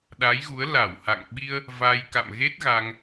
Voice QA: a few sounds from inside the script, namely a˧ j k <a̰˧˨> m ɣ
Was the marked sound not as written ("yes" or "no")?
no